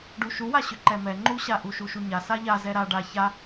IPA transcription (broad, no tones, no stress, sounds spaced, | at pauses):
ɖ u ʃ u w a ɕ ʏ ǃ ɛ m ɛ ŋ͡ǃ u ɕ a ʔ u ʃ u ʃ u ɲ a s a ʎ a z ɛ ɾ a ɖ a ç a